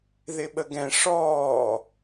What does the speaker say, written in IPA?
ðɪɓəɡɛ̃ ʂɔː

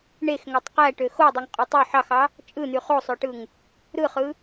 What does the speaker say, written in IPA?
ɳexŋøtˤ qæʈø xodˤyŋqʼu tˤy ħɑxɑ | t͡ʃʼɯn̪y χosˤøʈɯŋ | ɾɯχɯ

